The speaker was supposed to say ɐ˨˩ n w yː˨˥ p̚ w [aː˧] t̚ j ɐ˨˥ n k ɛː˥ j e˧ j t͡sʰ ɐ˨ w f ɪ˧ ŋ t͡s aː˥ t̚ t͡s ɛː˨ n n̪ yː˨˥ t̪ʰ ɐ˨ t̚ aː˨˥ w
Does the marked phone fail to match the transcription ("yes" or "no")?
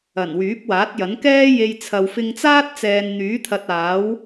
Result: yes